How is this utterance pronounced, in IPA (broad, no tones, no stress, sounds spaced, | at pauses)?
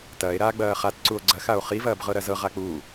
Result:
t ɐː e̯ ɾ aː ɡ͡b ɐː χ a t ǀ u o̯ ɡ͡ǀ ɐ x a o̯ χ i v ɐː b ʁ ɤ ɾ ɐ z ɤ ʁ a k͡p uː